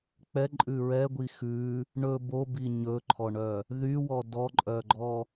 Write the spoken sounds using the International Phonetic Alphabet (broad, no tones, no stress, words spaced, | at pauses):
k͡pɛǃʼʉ ɹɛɡʷi xʉ | ɳɵ bobi ɲɵǃʰɔɳœ | ðywɔ dɔǃʼœɡ͡ǃɔ